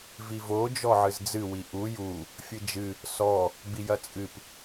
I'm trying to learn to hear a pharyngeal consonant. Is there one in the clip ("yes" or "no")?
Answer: yes